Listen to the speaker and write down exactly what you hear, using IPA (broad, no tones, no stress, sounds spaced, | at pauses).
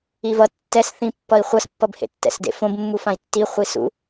i v ʌ tː ɛ s θ ĩ pː ʌ i̯ χʷ ʌ s pː ʌ b h ḛ tː ɛ̰ s d ḛ f õ b mː u f ã i̯ tː i χʷ i s ṵ